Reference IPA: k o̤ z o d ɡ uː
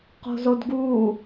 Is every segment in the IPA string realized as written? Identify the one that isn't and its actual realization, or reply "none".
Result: k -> q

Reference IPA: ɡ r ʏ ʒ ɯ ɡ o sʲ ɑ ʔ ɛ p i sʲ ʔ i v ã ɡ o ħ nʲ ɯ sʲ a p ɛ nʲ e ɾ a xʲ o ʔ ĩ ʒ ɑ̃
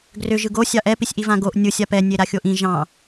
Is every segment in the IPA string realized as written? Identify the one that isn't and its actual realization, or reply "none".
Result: ħ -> ʔ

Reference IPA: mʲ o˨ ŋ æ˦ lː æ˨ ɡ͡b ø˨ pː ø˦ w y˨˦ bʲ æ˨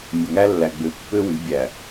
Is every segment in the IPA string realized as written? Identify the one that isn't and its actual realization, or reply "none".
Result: none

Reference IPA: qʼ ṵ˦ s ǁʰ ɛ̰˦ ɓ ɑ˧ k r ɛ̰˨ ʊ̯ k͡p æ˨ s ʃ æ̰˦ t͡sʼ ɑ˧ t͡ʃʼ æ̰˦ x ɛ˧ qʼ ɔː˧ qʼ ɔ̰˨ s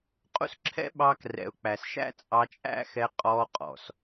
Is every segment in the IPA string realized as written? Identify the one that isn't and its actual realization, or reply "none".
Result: none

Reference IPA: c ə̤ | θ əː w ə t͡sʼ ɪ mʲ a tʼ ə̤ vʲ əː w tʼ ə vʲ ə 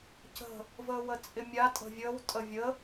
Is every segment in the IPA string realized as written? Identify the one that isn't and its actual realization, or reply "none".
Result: θ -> v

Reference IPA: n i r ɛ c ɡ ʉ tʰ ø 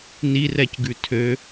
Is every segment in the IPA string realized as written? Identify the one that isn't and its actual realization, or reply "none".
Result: none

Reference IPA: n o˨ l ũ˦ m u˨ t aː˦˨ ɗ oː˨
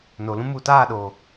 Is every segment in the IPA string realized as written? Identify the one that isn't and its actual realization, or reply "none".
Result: none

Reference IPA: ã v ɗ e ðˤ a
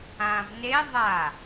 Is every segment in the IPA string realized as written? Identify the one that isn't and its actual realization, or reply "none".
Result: ɗ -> n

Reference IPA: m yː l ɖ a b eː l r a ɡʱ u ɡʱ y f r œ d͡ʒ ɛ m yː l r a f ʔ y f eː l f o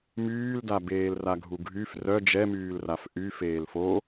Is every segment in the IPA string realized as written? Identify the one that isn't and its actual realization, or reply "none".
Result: ɖ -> d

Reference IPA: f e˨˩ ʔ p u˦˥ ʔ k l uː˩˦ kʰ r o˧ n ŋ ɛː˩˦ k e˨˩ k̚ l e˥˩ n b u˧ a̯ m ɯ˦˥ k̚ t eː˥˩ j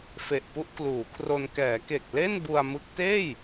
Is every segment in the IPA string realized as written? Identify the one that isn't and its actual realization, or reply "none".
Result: ŋ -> k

